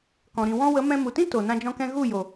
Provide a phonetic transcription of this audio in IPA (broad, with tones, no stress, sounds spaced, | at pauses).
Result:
k ɔ̃˨ ɾ ĩ˨ w ɔ̃˧ w ə˨˦ m ɛ̃˧ m u˨ t ĩ˦ t o˨ n ã˦ d͡ʒ ɔ̃˦ k ɛ̃˦ ɣ u˦˨ j o˨